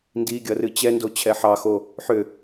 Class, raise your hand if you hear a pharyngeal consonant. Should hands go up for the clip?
yes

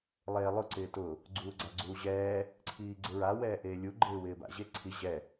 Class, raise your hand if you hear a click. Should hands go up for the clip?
yes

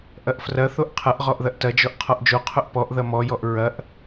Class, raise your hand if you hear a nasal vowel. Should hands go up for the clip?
no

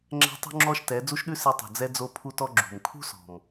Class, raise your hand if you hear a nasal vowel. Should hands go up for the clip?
no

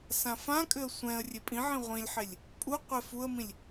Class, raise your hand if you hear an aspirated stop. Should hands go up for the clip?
no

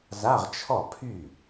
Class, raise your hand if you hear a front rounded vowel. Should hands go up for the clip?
yes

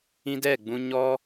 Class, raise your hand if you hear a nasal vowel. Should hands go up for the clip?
yes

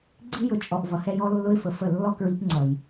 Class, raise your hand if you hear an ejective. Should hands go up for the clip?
yes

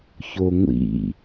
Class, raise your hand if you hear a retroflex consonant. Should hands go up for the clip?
no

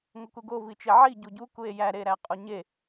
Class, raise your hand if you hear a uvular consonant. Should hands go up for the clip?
yes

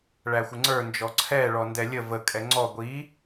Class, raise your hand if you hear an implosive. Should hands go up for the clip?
no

